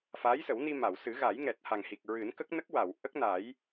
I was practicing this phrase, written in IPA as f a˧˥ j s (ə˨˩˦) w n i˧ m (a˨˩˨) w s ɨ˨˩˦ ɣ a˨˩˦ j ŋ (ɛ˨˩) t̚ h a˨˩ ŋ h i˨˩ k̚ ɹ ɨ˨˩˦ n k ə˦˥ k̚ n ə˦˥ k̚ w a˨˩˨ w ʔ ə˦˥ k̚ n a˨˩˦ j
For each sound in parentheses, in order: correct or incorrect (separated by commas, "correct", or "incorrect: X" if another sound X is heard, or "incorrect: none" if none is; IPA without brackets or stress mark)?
correct, correct, correct